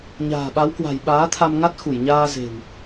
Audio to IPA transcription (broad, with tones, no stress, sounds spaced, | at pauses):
ɲ a̤ː˨˩ ɓ a˨˦ w k w a̤˨˩ j ɓ aː˨˦ t̪ʰ a˧ m ŋ a˦˥ t̚ x u˧˩ j ɲ aː˧ z e̤˨˩ w